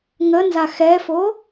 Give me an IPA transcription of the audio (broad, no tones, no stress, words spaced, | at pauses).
ŋənza xɛfo